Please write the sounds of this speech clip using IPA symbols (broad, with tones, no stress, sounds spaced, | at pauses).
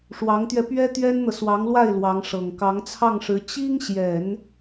ʂ w ɑ˧˥ ŋ t̪ ɥ ɛ˧ p ɥ ɛ˥ t̪ ɥ ɛ˥ n n̪ ɤ˨ s w ɑ˧˥ ŋ l w a˥˩ ɪ̯ l w ɑ˧˥ ŋ ʂ ɤ˨˩ ŋ k ɑ˧˥ ŋ t͡sʰ ɑ˥˩ ŋ ʂ ɻ̩˧˥ t͡ɕ i˥ ŋ ɕ j ɛ˨˩˦ n